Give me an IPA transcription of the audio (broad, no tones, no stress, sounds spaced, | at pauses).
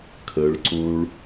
kʰ ə ɭ ǀ ũ ɭ